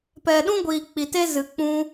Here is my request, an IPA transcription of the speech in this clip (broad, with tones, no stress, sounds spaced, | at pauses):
p ɛ˧ ɗ ũ˦ ɡʷ iː˧ k͡p i˧ t e˦ z ɨ˧ k͡p ũ˦